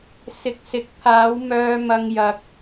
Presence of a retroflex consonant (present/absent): absent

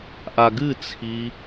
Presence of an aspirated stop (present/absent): present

